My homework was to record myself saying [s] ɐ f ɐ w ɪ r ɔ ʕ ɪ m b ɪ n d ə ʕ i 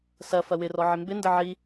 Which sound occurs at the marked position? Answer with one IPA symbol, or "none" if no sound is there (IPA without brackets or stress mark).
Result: s